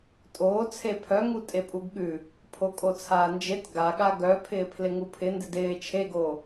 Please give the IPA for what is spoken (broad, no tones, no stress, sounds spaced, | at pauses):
tʼ oː t͡sʰ e pʰ œ ŋ u tʼ e pʼ u ɡ ɠ ʉ | pʰ o kʼ o t͡sʰ aː n d͡ʒ e t ɡ a ɠ a ɡ œ pʰ ɪː pʰ l ɪ ŋ u pʰ ɪ n d ɪ d ɪː t͡ʃʰ e ɡ oː